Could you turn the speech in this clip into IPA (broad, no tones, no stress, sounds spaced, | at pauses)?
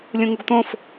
lʲ ũ ŋ u ɡ t̪ õ f